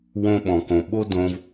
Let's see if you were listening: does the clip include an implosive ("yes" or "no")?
yes